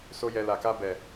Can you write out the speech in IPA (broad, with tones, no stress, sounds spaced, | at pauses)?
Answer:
s o˦ j ɛ˧ l a˨ k a˧ b ɛ˨